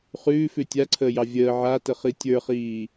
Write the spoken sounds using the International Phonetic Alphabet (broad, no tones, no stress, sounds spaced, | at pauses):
χ ʉː f ʉ tʲ a ǀʰ əː j ɑ vʲ əː ʕ a t ə χ i tʲ ə˞ χ iː